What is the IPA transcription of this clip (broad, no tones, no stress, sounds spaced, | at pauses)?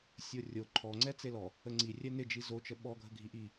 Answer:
sʲ o rʲ o ǃʰ ɔ ŋ͡ǀ ɛ t͡s e l ɔ | ə ŋ͡ǀ i rʲ ɛ n ɪ d͡ʒ i z o t͡ʃ ə ɓ ɔ ɡʱ ə ɡʱ i ʔ i